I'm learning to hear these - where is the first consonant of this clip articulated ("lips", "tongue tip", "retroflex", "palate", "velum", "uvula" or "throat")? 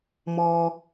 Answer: lips